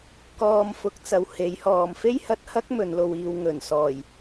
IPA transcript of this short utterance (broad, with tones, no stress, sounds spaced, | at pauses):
k ɔː˧ m f ʊ˨˥ k̚ t͡s ɐ˨ w h e˨˥ j h ɔː˨ m f e˥ j h ɐ˧ t̚ h ɐ˥ k̚ m ɵ˨˧ n l o˧ w iː˧ w ŋ ɵ˨˩ n s ɔː˨˩ j